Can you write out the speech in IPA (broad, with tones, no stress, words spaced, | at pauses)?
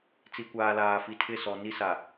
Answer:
t͡si˨kʷaː˨ laː˨fi˨ tʰɪ˦˨sɔ˨ni˦ sa˨